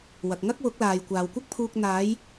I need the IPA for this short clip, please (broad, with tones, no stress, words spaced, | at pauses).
wɐ˨k̚ ŋɐ˥k̚wʊ˨˥k̚laː˨j kʷaː˨wkʷɐ˥k̚pʰuː˧k̚ n̪aː˨˧j